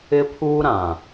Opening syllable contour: high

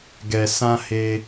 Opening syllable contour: low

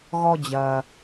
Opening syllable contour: high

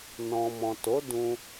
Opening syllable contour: low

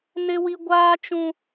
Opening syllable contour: high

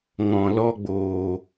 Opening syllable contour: low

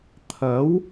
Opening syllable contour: rising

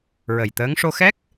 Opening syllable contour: low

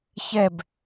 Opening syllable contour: falling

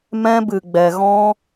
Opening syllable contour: high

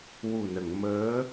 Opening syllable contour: low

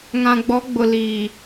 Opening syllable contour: low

